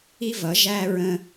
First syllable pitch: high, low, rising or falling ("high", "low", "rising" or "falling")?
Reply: high